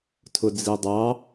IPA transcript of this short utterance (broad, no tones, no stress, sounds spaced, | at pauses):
tʰ ʊ d͡z i dˤ ɑ